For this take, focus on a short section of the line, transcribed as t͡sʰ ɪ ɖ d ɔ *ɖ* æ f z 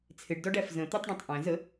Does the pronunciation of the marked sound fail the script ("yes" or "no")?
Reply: no